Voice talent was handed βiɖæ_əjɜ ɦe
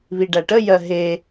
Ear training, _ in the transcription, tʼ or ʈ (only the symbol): ʈ